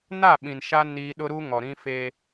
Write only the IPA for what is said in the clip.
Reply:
na˦˨ɓĩ˨nʃa˦ ni˦ ɗʊ˦ɾu˦ ŋɔ˨ɾĩ˦fe˦

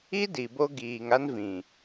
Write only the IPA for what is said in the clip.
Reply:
i˦ di˨bo˦ ɡiː˨ŋa˦n vĩ˨

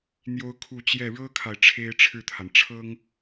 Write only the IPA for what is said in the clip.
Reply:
n̪jo˥ʊ̯kʰu˥˧ t͡ɕjɛ˥˩ ɻɤ˥kʰa˨ɪ̯ ʈ͡ʂʰe˥ɪ̯ʈ͡ʂʰɻ̩˥˩t̪ʰa˩n ʈ͡ʂʰɤ˥ŋ

